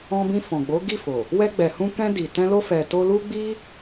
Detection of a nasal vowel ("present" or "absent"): present